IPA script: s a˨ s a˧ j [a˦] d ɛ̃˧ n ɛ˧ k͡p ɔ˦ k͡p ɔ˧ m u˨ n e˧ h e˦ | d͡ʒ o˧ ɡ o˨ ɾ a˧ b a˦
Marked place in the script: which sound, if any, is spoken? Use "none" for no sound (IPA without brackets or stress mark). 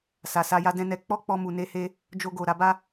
a˦